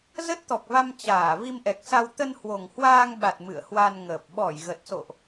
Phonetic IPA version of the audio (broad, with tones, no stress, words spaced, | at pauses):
zə˦˥t̚t̪ɔ˨˩k̚va˧m t͡ɕaː˧˩ vi˧mʔɛ˨˩k̚sa˧w t̪ə˧nhwo˨˩ŋhwaː˧ŋɓa˨˩t̚ mɨ̰˧˨ə̯hwa˧nŋəː˨˩p̚ ɓɔ˧˩jɣə˨˩t̚so̰˧˨ʔ